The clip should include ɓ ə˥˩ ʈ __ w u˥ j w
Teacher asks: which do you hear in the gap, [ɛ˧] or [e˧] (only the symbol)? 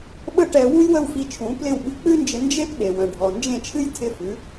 ɛ˧